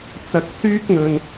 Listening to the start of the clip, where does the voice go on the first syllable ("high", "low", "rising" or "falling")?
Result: low